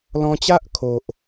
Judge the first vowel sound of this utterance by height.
mid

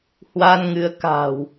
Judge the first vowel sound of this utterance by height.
low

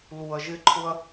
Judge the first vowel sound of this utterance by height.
high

